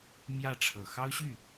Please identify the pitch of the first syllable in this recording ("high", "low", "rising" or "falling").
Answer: falling